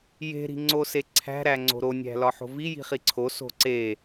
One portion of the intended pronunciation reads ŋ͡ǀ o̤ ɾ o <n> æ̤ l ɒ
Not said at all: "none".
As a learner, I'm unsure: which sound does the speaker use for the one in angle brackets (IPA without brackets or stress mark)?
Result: nʲ